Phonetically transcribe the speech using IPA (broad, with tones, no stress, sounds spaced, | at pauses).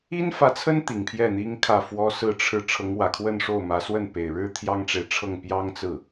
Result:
i˥ n f ä˧˥ t͡sʰ ə˥ n t̪ i˨˩ ŋ pʰ j ɛ˥˩ n̪ i˥ ŋ kʰ ä˥˩ f w ɔ˥ s ɹ̩˥˧ ʈ͡ʂʰ ɻ̩˥˩ ʈ͡ʂʰ ɤ˧˥ ŋ w ä˨˩ kʰ w ə˥˧ n ʂ o˥˩ ʊ̯ m ä˧˥ s w ə˥˩ n p e˨˩ ɪ̯ ɻ ɻ̩˥ t̪ʰ j ɑ˥ ŋ ʈ͡ʂ e˨ ɪ̯ ʈ͡ʂʰ ɤ˥˩ ŋ p j ɑ˥ ŋ t͡s ɹ̩˥˩